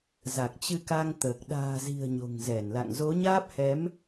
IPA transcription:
z a˨˩ k̚ t͡ɕ ɨ˧ k a˧ ŋ t̪ əː˨˩ k̚ ɗ a̤ː˨˩ z i̤˨˩ ə̯ ɲ o̤˨˩ ŋ z ɛ˧˩ n l a̰˧˨ ŋ z o˨˦ ɲ aː˦˥ p̚ h ɛ˨˦ m

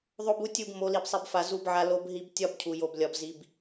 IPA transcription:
ðˤ o˦ b u˦ tʲ u˦˨ b m o˨˦ l i˨ b sˤ i˨ b f a˨ z u˦ b ʕ a˦ l o˦ b ɦ i˦ b tʲ ɒ˦ b cʰ u˨ j o˨ b lʲ ɒ˨ b z i˨ b

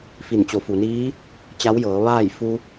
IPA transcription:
f i˧˩ n t͡ɕ o˩˧ f u˩ n iː˧˥ | t͡ɕ a˧˥ w j ɤː˩˧ ʋ aː˥˨ j f u˧

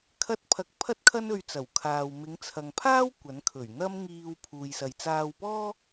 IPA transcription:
kʰ ɐ˥ t̚ pʰ ɐ˧ k̚ pʰ ɐ˥ t̚ kʰ ɐ˥ n ɵ˧ ɥ t͡s ɐ˨˩ w kʰ aː˨ w m ɪ˨˧ ŋ t͡sʰ ɐ˨ ŋ pʰ aː˥ w kʷ ɐ˨˥ n kʰ ɵ˨˩ ɥ n̪ ɐ˥ m ŋ iː˧ w pʰ uː˨ j s ɐ˨ j t͡s aː˧ w p ɔː˥

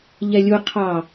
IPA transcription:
ʎ ɛ lʲ u qʰ ɑ

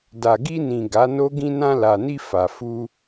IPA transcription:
d a˨ ɡ i˧ n ĩ˨ ɡ a˨˦ n o˦ ɡ ĩ˧ n ã˧ l a˨ n i˧ f a˨ f u˧

